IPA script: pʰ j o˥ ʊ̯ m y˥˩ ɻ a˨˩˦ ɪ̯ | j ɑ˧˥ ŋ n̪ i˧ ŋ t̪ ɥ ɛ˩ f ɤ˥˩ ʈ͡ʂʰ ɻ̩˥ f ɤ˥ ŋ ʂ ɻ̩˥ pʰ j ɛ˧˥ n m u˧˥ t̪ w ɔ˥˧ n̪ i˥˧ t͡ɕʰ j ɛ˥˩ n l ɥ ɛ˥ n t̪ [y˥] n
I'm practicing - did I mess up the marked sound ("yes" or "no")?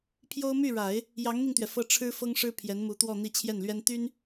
no